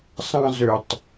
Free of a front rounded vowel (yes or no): no